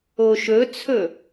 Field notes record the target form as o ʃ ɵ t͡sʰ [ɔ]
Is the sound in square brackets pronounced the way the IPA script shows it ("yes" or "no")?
no